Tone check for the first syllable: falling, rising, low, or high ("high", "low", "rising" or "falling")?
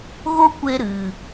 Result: high